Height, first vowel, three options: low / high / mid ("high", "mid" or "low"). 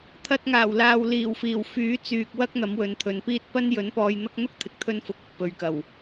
low